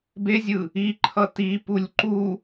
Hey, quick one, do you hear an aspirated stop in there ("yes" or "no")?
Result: yes